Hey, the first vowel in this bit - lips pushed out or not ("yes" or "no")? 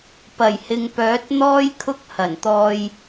no